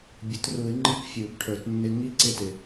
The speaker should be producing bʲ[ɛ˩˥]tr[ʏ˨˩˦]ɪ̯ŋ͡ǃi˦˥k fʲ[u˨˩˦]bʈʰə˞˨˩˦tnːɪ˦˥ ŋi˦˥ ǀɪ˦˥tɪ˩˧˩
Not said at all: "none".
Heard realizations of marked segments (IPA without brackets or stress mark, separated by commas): ə˩˥, u˨˩˦, u˨˩˦